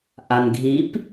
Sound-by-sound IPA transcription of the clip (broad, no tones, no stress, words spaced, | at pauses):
ʔanɡʱip